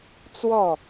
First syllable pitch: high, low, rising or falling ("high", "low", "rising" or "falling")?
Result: falling